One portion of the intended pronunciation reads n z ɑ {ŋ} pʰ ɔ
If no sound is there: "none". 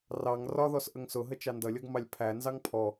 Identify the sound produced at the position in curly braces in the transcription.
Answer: ŋ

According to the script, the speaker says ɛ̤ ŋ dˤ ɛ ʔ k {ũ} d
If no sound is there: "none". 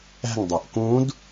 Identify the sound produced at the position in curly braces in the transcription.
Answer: ũ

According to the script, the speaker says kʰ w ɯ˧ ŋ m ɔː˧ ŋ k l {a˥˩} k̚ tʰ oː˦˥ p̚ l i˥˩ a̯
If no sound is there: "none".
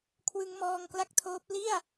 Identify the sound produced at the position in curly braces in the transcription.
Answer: a˥˩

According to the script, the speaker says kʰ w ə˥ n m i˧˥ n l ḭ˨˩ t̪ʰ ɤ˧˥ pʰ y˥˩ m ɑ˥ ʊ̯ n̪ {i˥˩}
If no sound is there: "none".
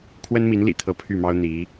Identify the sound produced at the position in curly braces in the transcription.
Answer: i˧˥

